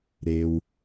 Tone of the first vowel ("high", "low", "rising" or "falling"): low